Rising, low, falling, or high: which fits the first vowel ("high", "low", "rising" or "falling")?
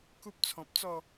high